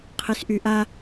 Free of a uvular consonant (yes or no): no